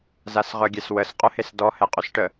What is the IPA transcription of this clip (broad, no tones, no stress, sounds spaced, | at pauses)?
z a s ʁ œ ɡʲ ɛ s w ə s qʼ œ h e s d ɔ h ɛ qʼ y s ʈ ə